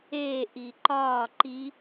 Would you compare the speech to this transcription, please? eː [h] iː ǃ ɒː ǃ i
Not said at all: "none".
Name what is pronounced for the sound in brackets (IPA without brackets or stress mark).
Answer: ʔ